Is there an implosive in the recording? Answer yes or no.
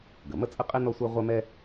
no